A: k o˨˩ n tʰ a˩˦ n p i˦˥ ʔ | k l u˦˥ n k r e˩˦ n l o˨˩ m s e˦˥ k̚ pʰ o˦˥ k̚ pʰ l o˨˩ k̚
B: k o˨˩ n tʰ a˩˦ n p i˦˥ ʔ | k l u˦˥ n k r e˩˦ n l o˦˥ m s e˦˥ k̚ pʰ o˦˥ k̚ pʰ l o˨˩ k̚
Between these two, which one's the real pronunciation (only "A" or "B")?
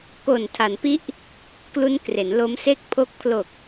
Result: B